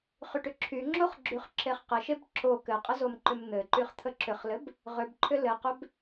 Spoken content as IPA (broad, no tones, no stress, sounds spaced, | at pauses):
χ y ʈ ʏ ǁʰ y ŋ͡ǁ o χ ɡ͡ǁ y χ ǁ e χ q ɘ ʃ e b ǁ o k ɘ qʼ ə z o m ǃ ʏ m n̪ ɘ ǃ y χ t̪ʰ ə ǁ ʏ χ l ɘ b | ʁ ʏ b ǃʰ ʏ l ɘ q ʏ b